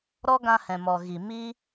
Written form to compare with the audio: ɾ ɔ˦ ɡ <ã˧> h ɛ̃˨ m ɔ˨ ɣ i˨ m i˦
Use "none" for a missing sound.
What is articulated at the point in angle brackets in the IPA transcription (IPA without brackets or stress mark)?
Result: ã˧